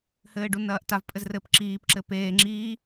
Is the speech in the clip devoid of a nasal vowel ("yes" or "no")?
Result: yes